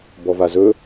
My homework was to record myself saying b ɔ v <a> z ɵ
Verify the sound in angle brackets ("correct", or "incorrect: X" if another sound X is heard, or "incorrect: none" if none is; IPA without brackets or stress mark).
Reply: correct